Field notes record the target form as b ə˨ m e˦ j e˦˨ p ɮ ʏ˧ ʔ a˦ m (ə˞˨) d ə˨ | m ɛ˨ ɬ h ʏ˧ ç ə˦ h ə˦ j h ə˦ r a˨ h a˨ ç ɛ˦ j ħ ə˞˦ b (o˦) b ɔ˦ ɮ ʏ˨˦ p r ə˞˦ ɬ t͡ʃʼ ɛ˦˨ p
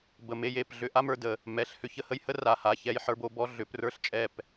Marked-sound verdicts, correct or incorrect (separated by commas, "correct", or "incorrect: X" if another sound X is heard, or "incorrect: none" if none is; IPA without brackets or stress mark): correct, correct